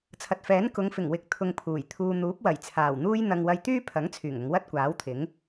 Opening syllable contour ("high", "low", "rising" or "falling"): low